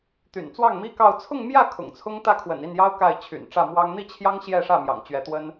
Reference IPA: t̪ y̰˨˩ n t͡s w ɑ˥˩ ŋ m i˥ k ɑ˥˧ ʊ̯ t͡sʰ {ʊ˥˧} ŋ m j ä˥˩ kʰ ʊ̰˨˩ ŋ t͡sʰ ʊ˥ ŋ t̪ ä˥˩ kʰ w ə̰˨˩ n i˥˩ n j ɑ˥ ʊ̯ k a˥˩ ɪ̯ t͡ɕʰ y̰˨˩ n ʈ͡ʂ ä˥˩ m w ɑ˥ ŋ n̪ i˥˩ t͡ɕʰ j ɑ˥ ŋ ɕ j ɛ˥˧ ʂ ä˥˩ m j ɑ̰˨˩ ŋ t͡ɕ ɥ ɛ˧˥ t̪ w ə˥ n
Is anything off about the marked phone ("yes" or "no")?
no